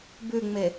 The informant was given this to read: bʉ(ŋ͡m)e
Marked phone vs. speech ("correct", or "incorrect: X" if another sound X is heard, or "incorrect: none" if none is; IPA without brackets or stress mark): correct